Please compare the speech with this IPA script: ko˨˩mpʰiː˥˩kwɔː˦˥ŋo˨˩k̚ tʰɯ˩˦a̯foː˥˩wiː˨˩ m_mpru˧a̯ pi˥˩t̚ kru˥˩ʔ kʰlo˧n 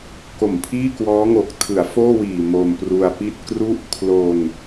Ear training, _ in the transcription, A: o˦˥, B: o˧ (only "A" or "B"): B